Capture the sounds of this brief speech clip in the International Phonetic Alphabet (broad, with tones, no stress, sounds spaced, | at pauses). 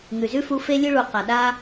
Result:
ŋ ʉ˨ z ʉ˦ f u˧ f e˦ lʲ ɨ˦ ɭ u˨ q a˨ ɗ a˦